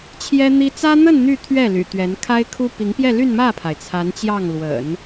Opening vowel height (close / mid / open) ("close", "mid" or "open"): mid